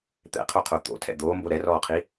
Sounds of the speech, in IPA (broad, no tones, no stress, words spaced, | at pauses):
t̪ɛ̰qʰoqʰo t̪o̰tʰɛ̰ d̪oːmbo ɾɛrɔːqʰi